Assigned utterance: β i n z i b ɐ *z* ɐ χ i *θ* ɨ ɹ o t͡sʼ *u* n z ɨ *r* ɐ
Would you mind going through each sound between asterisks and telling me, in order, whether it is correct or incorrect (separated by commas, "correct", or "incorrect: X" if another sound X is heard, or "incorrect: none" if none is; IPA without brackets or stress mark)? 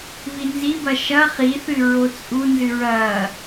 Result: incorrect: ʃ, correct, correct, incorrect: ɹ